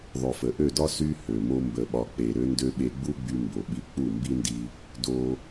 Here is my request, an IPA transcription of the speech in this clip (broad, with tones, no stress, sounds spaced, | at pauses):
ðˤ ø˨ f ə˨ ʔ ø˦˨ d ɒ˦ s y˧ h ø˨ m o˦ m b ə˧ ɓ ɒ˧ k͡p e˨ ɾ ø˧ n d ø˧ ɓ e˧ ɡ͡b u˦ ɡ͡b y˧ m b o˨ ɓ i˧ k͡p u˦˨ m b i˦ n d i˧ | d o˧